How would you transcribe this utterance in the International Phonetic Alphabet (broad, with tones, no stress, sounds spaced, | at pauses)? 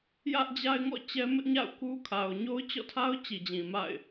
j ä˦ ʔ d͡ʑ a˦ ɪ̯ ŋ ɔ̰˦˨ t͡ɕ ɛ˦ m ɪ˦ ʔ ɲ a̰˦˨ ʊ̯ k u˦ kʰ a˨ ʊ̯ ɲ o˦ ʊ̯ t͡ɕ ɔ̰˦˨ tʰ a˦ ʊ̯ t͡ɕ i˨ d͡ʑ ĩ˨ m a̰˦˨ ɪ̯